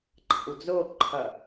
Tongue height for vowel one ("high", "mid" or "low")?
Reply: low